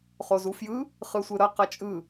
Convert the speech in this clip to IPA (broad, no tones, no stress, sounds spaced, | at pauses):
χ o z u f j ɯ | χ ɯ sʷ ɯ ɾ ʌ q ʌ t͡ʃʼ ɯ